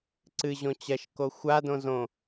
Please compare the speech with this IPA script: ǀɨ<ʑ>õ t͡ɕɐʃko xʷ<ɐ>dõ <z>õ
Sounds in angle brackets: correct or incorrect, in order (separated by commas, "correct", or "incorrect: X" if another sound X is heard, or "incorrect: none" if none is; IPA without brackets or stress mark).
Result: correct, incorrect: a, correct